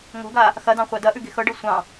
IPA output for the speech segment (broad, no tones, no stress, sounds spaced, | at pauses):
ŋ o̤ ɡ a | x ɐ d ɑ̃ χʷ a d ɐ ʔ ʉ ɡ e̤ x ɤ ɖ ɤ sʷ ɑ̃